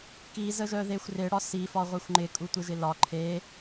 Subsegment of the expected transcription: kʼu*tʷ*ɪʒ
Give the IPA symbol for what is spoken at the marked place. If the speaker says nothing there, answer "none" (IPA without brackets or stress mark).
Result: tʷ